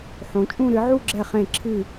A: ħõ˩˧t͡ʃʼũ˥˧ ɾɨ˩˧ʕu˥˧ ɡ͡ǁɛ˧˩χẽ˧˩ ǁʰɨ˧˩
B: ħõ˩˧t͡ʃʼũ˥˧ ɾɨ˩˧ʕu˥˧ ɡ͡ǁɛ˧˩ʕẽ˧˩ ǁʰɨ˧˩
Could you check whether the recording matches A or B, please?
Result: A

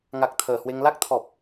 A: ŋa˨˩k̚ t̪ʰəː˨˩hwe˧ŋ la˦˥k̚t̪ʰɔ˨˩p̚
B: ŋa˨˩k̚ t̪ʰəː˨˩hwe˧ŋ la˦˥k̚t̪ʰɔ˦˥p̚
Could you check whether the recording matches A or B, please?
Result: A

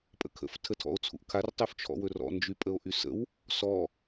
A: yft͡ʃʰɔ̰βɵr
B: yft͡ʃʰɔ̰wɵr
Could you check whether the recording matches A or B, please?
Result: B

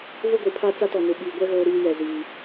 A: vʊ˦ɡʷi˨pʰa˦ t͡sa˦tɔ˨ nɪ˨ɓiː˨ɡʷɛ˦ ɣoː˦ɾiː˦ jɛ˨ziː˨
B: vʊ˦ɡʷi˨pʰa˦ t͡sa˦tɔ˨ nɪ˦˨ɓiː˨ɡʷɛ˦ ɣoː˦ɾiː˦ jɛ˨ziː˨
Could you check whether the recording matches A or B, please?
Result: A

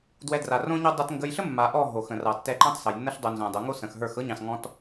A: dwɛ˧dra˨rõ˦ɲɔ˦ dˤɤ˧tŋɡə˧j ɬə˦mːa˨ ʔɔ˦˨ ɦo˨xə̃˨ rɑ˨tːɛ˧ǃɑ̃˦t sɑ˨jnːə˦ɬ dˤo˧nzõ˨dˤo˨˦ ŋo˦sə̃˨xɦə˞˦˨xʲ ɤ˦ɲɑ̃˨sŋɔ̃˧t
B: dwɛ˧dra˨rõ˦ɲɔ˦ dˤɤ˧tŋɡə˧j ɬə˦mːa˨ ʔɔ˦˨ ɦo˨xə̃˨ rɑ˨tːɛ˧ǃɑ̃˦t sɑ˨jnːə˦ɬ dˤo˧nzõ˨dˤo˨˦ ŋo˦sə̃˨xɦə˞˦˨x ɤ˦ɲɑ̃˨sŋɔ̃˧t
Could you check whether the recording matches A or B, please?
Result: B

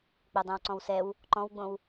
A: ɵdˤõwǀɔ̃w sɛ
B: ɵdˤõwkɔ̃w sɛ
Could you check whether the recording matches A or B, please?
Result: A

